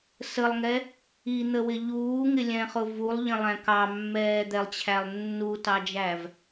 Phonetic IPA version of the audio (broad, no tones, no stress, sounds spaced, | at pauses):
s ə lˠ ŋ ɛ | i n̪ ə w ɪ ʎ uː ŋ ɪ lʲ ɛ̃ χ ʊ v u lˠ ʎ ə̃ lˠ æ̃ k ɑ mː ɛː d̪ ɛ lˠ t͡ɕʰ æ lˠ nː u t ɑ d͡ʒ æ v